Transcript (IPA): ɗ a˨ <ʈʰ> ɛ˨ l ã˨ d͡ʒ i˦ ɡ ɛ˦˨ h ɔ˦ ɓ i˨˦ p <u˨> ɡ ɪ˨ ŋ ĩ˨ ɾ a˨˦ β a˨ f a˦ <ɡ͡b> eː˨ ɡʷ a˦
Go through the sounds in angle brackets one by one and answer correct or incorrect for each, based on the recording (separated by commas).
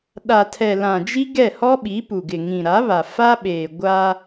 incorrect, correct, incorrect